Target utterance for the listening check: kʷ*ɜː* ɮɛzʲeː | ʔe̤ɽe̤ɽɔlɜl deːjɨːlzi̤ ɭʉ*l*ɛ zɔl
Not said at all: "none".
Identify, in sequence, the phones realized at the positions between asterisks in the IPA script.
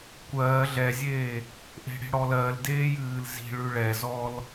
ɜː, ɭ

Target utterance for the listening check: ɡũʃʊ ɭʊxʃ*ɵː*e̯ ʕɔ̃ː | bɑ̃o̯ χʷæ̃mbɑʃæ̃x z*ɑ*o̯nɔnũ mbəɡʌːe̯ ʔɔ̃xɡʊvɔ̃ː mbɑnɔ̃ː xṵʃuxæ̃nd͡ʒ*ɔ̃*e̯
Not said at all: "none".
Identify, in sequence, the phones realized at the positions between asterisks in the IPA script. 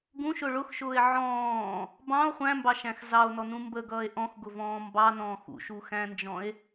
ʊː, ɑ, ɔ̃

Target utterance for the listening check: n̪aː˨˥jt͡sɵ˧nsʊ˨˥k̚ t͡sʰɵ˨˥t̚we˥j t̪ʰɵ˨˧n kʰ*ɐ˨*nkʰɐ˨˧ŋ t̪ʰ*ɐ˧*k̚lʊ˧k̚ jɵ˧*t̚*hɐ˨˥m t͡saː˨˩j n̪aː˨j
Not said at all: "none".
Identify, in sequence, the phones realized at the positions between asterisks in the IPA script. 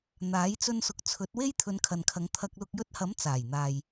ɐ˨, ɐ˧, t̚

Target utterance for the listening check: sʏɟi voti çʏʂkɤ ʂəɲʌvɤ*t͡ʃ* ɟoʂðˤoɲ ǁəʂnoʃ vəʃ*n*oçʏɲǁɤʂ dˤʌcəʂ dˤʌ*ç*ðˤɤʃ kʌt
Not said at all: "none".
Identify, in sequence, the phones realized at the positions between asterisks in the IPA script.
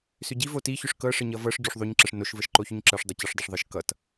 ʂ, ǃ, ʂ

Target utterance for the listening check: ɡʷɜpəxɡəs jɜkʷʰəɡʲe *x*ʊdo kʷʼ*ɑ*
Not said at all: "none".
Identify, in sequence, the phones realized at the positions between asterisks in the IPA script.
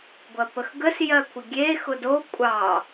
x, ɑ

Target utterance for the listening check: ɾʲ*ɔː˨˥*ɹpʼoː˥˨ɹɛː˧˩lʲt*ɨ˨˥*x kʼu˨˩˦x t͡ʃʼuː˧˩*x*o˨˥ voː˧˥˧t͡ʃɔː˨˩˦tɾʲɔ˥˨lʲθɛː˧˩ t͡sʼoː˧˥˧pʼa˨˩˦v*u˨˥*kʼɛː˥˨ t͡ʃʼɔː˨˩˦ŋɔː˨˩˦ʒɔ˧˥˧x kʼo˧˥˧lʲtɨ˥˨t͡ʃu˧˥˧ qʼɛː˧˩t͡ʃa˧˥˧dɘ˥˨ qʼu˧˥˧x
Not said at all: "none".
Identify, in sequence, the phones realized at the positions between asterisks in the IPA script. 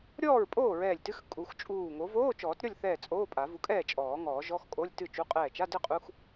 ɔː˥˨, ɨ˧˥˧, ŋ, u˨˥

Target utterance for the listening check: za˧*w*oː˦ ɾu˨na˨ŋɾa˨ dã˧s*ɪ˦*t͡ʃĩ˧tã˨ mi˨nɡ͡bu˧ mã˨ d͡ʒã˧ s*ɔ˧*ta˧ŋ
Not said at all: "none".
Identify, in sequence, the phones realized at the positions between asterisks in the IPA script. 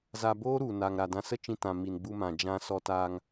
b, ə˦, ɔ˧

